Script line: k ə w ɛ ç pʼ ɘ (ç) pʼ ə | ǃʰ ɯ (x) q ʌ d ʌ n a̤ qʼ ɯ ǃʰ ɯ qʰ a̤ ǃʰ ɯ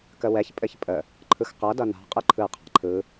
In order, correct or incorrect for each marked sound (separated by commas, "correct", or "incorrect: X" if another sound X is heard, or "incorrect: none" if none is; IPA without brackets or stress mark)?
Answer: correct, correct